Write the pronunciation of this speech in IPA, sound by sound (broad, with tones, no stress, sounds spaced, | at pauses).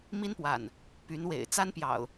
m i˦ n p w a̰˨˩ n | p y˨˦ n w ḛ˨˩ ɪ̯ t͡s a˦ n p j ɑ̰˨˩ ʊ̯